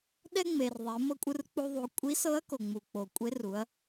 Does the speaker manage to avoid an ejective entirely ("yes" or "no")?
no